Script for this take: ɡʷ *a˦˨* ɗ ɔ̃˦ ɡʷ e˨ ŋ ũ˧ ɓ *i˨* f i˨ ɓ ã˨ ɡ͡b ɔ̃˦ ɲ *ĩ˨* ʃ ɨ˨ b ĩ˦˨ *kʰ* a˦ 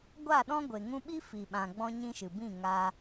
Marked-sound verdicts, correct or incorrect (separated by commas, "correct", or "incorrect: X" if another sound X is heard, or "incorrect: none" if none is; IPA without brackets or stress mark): correct, incorrect: i˦, incorrect: ĩ˦, incorrect: ŋ